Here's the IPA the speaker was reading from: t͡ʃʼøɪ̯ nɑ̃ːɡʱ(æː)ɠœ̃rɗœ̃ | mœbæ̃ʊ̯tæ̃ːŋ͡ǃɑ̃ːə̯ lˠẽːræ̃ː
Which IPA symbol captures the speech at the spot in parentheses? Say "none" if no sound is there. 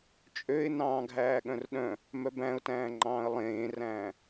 æː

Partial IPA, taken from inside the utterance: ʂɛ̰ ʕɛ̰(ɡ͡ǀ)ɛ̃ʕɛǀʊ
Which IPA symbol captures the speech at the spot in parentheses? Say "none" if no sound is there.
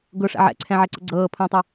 ǀʰ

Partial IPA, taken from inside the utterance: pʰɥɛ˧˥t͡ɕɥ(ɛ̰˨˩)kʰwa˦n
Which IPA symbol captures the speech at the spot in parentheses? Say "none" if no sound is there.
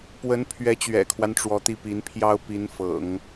ɛ̰˨˩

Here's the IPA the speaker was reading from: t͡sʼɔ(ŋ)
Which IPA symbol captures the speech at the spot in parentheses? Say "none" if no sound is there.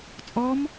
m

